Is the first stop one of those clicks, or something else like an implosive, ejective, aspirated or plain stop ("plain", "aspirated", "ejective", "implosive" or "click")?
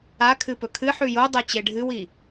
aspirated